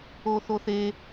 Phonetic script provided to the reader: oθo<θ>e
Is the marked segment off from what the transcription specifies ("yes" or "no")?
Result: no